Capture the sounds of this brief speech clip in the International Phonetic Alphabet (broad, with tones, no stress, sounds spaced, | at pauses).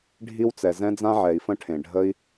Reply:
ɖʱ i˦ w t͡s ɛ˨ z ɛ̃˦ d͡z ã˦ ʕ ɛ˨ i̯ f ə̃˦ ʈʰ ẽ˨ ɖʱ ə˦ i̯